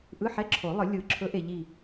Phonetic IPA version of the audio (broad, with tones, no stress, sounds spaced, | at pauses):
ʔ ɯ˧˥˧ ħ ɛ˧˥˧ ǁʰ o˨˩˦ lˠ ɯ˨˩˦ lʲ ɯ˨˩˦ ǁʰ ɵ˨˥ ʔ e˨ ʎ i˦˨